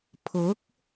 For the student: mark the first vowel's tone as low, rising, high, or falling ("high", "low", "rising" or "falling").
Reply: rising